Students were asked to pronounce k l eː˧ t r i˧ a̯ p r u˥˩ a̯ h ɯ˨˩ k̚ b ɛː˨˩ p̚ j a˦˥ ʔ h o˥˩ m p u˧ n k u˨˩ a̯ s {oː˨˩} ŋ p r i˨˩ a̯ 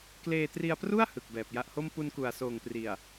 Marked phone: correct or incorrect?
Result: correct